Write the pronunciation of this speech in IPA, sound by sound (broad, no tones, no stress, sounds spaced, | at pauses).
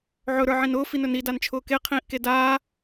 ʕ ɵ ɾ ə˞ ʕ ĩ n ʊː f i n ɵ n i d a n t͡ʃʰ ʊː k e qʰ ĩː ʔ k e d aː